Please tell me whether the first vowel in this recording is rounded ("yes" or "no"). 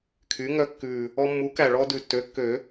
yes